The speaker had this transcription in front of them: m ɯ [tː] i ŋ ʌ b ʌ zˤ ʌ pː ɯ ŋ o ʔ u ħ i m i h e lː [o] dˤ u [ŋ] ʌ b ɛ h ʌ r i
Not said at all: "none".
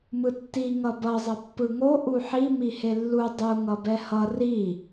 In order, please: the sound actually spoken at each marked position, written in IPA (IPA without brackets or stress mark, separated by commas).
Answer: tː, u, ŋ